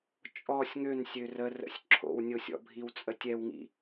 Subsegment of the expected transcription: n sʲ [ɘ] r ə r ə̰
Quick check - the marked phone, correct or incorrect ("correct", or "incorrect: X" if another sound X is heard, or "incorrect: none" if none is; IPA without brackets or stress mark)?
incorrect: ø